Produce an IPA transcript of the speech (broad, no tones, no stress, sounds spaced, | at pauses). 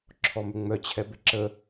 ǁʰ ɔ m ʏ ŋ͡m œ t͡ɕʰ ɛ b ɪ ǁ ə